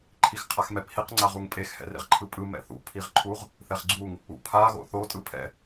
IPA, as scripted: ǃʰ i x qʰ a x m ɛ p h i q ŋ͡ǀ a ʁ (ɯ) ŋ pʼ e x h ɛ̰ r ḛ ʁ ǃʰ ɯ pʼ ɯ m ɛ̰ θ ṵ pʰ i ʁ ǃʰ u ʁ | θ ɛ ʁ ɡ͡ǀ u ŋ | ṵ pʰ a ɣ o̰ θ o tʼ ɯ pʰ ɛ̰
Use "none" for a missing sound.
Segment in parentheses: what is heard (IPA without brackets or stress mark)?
u